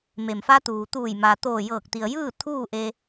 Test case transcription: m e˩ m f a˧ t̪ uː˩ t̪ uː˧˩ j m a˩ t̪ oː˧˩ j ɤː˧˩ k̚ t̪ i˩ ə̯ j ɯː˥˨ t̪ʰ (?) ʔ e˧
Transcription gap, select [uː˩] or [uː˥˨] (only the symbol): uː˥˨